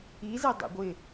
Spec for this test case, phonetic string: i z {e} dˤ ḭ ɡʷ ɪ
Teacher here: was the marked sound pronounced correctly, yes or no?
yes